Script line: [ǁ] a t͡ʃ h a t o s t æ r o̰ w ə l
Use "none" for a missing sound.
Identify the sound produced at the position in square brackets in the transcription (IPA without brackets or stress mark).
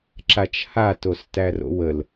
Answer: ǁ